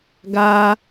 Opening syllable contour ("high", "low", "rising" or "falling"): high